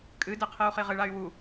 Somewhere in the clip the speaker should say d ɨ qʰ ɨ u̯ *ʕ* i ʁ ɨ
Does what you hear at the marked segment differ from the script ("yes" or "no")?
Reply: yes